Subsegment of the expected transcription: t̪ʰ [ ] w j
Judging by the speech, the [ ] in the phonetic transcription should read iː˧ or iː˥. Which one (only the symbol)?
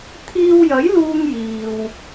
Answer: iː˧